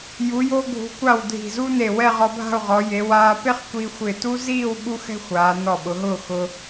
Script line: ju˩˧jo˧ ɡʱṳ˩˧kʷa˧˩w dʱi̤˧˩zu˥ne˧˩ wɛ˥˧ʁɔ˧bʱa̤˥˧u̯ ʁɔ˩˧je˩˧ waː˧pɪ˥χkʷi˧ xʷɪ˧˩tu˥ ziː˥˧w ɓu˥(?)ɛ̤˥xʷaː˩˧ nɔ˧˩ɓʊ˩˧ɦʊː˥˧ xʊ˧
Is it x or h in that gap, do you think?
x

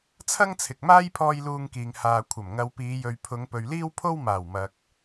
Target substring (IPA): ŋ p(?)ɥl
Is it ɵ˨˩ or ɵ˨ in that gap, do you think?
ɵ˨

